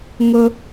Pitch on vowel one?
high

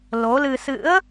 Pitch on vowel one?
rising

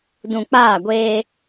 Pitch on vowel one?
low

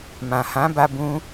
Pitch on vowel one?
low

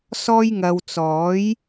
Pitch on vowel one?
high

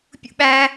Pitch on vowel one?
high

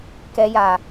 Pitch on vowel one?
low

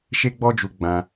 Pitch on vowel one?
high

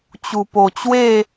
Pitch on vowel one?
low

